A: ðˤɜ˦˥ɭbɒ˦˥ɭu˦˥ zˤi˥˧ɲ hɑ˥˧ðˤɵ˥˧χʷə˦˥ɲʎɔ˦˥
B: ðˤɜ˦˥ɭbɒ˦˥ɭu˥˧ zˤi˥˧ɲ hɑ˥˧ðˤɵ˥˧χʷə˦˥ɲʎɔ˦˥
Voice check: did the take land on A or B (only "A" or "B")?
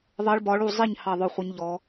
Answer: B